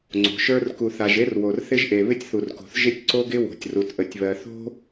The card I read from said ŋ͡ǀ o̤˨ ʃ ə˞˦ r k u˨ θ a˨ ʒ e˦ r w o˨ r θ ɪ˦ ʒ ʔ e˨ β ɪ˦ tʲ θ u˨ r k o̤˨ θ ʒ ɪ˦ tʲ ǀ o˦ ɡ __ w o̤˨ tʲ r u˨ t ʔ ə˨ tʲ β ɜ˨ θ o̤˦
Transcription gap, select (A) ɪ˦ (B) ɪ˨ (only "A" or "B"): A